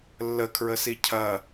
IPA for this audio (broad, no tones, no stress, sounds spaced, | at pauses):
lː ə kʰ ɹ ə s i cʰ ɐ